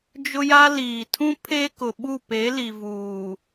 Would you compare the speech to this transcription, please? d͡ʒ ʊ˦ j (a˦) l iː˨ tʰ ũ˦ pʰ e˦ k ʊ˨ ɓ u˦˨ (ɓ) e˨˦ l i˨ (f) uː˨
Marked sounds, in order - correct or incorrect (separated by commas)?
correct, incorrect, incorrect